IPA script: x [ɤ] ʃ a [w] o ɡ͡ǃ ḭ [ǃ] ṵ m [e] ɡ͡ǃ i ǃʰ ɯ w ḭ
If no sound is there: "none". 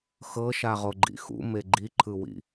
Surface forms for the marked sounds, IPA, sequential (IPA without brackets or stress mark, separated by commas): ɤ, ʁ, x, e